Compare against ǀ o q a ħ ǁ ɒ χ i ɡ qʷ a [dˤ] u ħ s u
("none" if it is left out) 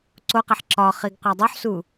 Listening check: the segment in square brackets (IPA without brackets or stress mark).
dˤ